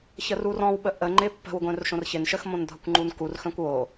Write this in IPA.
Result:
ç ə r u r ɔ̃ w ɓ ə ʔ ə ŋ͡ǃ ɪ pː ə̤ w ɡʷ œ̃ r ʃ õ r ç ɪ n ʃ ə x m õ n dʱ ʌ kʷ ŋ͡ǃ u n k u r x œ̃ kʷ w o

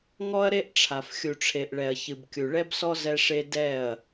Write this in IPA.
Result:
ŋ ɔ˦ ɐ̯ ɾ e˦ ʔ ʈ͡ʂʰ a˨ f xʲ u˨ ʈ͡ʂʰ e˨ ʔ ɭ ɛ˨ ɐ̯ ç ɨ˨ b kʲ u˨ ɭ ɛ˦ b s ɔ˦ z ɛ˦ ʂ e˦ d ɛ˦˨ ɐ̯

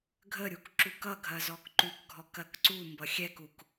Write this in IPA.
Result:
ɡʱ ə ɾʲ u k ǁ u k ʌ ɡʱ ɐ z ɔ k ǃ ʉ k ɡʱ ɔ k ɐ k ǀ u m b ʌ xʲ ɛ k u k

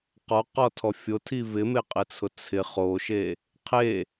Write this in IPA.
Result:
q ɔ q ɔ tʰ ɔ fʲ o tʰ i v ɪ m e qʼ ɪ t͡sʰ ʊ t͡sʰ ɪ χ o ʃ e | qʰ e

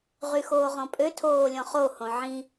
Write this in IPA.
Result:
ʁ y x oː ʁ ɔ̃ pʼ ø tʰ oː lʲ ɔ̃ χ o h õ ʕ ĩ

